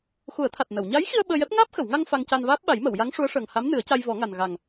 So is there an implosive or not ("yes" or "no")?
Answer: yes